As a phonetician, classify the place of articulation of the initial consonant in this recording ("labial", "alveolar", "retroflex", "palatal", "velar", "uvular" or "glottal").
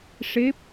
retroflex